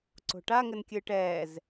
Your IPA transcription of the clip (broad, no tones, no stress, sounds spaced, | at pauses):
ǀ o̤ ʈ a ŋ ɘ n kʲ ɨː ʈ ɛː z